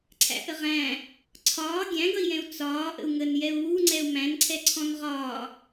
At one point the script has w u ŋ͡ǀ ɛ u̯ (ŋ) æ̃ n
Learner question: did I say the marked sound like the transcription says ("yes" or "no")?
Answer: no